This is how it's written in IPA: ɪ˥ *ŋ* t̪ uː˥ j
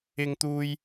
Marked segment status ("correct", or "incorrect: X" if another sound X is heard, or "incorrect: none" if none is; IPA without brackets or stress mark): correct